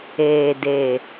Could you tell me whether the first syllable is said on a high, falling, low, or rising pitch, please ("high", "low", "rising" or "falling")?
low